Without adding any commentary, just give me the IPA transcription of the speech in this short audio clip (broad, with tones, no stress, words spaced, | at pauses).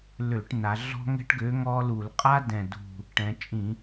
lø˧˩˧ʈna˩˧ ɮɔ̤˦ŋɛ̤˦ʈɡø˨˥ ŋɔ˦lu˧˩˧l qʼa˦dɛ̃˨˩dṳ˨˩ | ʈɛ̃˩˧t͡ʃʼĩ˧˩˧